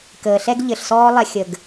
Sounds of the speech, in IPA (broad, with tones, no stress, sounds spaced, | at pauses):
k əː˨ ɬ ɛ˦ ɡ ʎ ɘ˨ ɬ s ɔː˦ lˠ ɛ˧ xʲ ə˨ ɡ